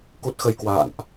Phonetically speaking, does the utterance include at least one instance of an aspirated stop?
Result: no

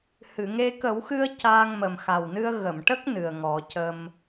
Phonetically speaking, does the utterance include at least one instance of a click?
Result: no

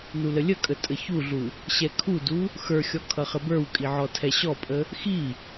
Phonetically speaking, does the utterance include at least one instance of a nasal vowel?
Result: no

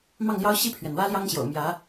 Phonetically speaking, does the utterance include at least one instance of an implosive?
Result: no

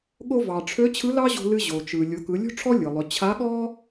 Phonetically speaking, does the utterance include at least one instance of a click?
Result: no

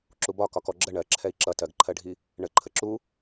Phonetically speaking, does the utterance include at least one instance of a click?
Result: yes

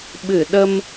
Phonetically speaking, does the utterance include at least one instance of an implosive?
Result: yes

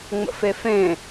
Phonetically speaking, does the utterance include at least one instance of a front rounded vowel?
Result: no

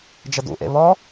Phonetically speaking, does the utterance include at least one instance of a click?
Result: no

